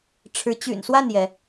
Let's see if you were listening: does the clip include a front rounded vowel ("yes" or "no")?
yes